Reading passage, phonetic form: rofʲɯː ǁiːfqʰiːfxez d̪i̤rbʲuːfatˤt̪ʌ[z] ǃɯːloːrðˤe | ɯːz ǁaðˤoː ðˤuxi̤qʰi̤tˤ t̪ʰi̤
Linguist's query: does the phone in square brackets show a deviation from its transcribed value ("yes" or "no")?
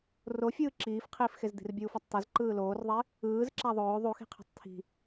no